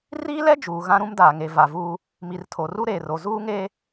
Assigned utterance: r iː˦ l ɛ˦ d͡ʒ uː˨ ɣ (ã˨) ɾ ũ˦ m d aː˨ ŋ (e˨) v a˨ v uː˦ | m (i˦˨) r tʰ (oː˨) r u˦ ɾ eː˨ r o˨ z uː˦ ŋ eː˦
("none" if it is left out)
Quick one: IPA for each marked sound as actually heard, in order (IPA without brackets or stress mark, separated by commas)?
ã˦, e˨, i˨, o˨